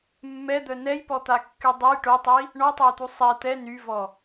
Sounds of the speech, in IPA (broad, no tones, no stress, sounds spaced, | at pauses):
mː ɛ d̪ œ n ɛ j p ɔ t̪ a kː y dˤ ø j ʈ o tˤ i | ɳ ɔ tˤ ø j t̪ u sˤ ɛ t̪ ɛ n y v ɔ